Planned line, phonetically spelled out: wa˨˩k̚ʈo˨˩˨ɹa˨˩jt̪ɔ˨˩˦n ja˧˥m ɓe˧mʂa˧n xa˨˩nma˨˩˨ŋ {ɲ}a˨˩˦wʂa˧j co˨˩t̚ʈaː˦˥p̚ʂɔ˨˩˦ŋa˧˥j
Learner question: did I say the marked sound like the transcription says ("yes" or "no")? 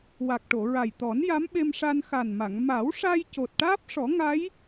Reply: no